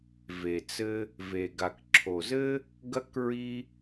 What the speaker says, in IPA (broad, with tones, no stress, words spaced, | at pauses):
ve˨ t͡sɘ˦ | ve˨ɡa˨kǁʰo˨zɘ˦ | ɡɐ˦k ɹi˦